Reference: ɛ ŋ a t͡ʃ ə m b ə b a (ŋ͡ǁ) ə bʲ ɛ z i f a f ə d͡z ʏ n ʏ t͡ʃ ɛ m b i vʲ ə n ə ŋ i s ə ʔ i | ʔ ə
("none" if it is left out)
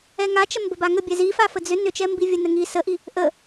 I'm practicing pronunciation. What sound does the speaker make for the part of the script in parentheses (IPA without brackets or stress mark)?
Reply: ŋ